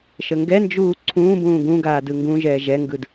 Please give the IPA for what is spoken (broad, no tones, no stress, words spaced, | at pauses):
ʃəŋɡɛnd͡ʒuː ǀʰũːbũː ɡũ ɡaːdɯŋɡũʒɛː ʒɛŋɡɯd